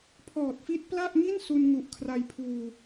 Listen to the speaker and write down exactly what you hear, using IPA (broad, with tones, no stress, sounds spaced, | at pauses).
pʰ ɔː˨˩ t̚ f i˦˥ t̚ p l a˥˩ ʔ ŋ i˥˩ n s u˧ n ŋ u˨˩ ʔ kʰ r a˧ j pʰ uː˧